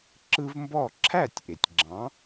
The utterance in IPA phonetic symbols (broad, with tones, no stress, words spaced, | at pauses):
ǁɯ˦vmbɔ˥˩ ǁʰæ˥˩tʲ ʔe˩tʲɡ͡ǁɑ̃˨˥